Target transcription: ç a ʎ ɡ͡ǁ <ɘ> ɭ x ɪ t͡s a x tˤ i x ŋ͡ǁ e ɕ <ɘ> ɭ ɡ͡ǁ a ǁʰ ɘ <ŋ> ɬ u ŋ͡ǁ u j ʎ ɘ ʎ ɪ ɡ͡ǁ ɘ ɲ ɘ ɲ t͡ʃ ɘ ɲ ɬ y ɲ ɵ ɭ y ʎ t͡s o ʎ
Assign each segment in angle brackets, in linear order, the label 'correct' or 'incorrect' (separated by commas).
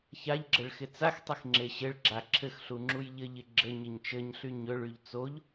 correct, correct, incorrect